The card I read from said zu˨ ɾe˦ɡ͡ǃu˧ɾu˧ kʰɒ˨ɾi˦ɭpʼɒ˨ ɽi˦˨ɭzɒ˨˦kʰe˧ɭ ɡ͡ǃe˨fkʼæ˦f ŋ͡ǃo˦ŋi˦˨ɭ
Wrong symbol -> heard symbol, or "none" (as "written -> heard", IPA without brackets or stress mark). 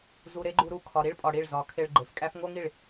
ŋ͡ǃ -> ŋ